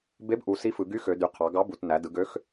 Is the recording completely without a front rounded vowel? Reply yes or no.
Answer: no